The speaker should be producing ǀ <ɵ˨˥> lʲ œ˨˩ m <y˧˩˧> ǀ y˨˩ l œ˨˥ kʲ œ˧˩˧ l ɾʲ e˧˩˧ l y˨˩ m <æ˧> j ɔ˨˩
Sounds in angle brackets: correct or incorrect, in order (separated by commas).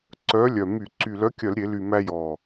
incorrect, correct, correct